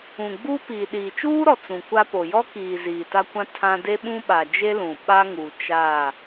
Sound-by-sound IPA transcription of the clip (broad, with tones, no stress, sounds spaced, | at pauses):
ũ˨ ɡ͡b uː˦ p iː˨ ɗ iː˨ t͡ʃ uː˦ ɾ ɔ˨ t͡s ũ˨ kʷ a˦ p o˨ j ɔ˦ k iː˨ z iː˨ t a˦ kʷ ã˦ tʰ ã˦ d e˦ ɓ ũ˦ ɓ a˨ d͡ʒ e˦ l ũ˨ ɓ a˦ ŋ uː˨ t͡ʃ aː˦˨